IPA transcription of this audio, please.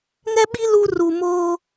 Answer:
ŋɛ˦ɓi˦ lu˦ ru˨ moː˦

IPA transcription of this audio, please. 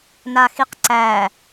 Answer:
naxiqǀæ

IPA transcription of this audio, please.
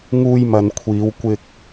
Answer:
ŋuː˧jmɐ˨nkʷʰiː˨˧w kʷɪ˧k̚

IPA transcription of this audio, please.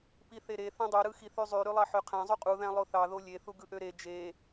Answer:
piθeɾe θẽdˤy ɾɯxiθyzˤy ɾylˠɑħøqʰæ̃ zˤyqʼu ðæ̃lˠoθɑ ðolʲe θuɡɯʔøɾe d͡ʒe

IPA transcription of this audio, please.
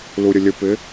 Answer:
luɾʲəlʲəpɪ

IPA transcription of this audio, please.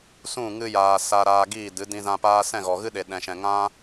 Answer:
sũ˦˨ ŋɨ˧jaː˨ sa˧ɾaː˧ ɡiː˦˨dɨ˨˦ dĩ˧zã˧paː˦ sɛ̃˦˨ɣɔ˨ɣɨ˦ ɗe˨ɗɛ̃˨ʃɛ̃˨ ŋã˦

